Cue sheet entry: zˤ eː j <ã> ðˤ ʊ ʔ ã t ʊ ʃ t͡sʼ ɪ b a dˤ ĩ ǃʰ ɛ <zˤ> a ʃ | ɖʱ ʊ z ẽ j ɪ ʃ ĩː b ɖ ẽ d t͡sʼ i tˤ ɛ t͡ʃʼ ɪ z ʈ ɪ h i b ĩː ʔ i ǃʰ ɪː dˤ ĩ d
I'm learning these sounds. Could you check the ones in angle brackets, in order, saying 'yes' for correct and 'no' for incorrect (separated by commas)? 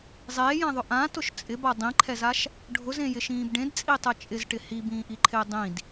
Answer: yes, no